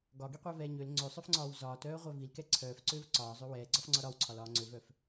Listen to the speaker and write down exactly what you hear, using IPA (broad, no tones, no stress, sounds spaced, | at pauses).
ɡ ɒ ɡ i qʷ œ v ɛː ɲ ø l ŋ͡ǀ ø sˤ œ f ŋ͡ǀ ɒː w z ɒː t œː ʁʷ œ v i l k ɛ ǀʰ œː f ǀ øː v ǀ ɒː zˤ ø w ɛː ɡ͡ǀ ɒ f ŋ͡ǀ ɒ ɾ ɒ w ǀʰ ɒ l ɒː ŋ͡ǀ ø v œ f